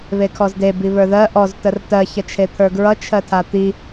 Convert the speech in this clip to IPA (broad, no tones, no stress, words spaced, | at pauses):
βekʰɔzde biβə˞ðɜ ʔɔz tərtɜ çʌt͡ʃʰet̪ʰə˞ɡɹʌ t͡ʃʰɜtʰat̪i